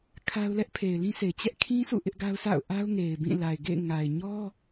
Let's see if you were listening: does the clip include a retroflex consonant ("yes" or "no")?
no